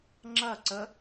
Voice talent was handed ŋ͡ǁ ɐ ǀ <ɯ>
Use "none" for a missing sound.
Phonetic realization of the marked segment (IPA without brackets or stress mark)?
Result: ə